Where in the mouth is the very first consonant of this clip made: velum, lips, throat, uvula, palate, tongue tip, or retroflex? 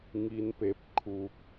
velum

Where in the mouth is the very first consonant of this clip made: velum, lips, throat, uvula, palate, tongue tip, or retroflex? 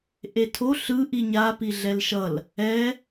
throat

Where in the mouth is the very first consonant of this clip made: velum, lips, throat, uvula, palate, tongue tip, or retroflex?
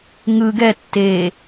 velum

